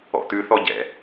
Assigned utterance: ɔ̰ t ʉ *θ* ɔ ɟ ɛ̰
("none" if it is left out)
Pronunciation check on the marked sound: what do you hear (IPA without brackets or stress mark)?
θ